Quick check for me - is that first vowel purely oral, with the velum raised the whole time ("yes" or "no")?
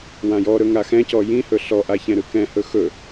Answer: no